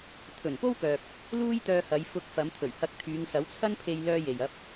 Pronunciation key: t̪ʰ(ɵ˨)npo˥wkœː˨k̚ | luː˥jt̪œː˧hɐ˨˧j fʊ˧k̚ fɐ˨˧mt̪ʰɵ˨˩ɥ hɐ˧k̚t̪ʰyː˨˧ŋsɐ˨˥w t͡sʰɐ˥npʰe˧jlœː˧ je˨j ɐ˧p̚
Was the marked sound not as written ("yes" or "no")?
yes